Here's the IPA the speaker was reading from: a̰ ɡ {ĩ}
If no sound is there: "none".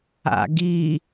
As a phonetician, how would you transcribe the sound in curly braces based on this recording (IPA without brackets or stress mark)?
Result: i